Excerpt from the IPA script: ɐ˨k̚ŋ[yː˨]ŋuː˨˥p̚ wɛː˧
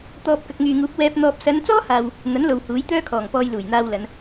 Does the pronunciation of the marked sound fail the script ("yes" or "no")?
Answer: no